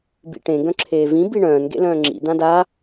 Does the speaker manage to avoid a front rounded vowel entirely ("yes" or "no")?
no